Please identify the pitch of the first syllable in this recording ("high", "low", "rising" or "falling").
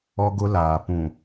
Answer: high